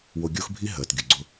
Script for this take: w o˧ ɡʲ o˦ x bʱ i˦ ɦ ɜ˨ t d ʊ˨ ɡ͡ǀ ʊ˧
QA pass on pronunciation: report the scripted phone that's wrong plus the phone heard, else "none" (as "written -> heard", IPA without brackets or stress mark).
d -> ɡʲ